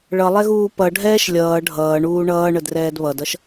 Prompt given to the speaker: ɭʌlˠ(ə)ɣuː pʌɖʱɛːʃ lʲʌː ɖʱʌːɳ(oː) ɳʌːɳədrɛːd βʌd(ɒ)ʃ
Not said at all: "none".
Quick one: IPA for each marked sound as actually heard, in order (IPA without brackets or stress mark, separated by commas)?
ɛ, uː, ʌ